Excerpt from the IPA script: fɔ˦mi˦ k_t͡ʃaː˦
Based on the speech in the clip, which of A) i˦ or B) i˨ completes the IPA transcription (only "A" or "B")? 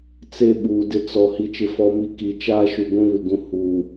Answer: B